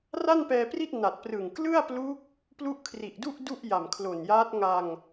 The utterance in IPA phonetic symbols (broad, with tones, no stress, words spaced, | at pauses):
ra˥˩npɛː˧pri˥˩t̚ na˨˩t̚prɯ˨˩ŋ klɯ˥˩a̯plu˦˥k̚ | plu˦˥ʔkʰri˨˩ʔdu˥˩ʔ du˥˩ʔja˨˩mkʰlo˨˩njaː˦˥t̚ ŋa˧ŋ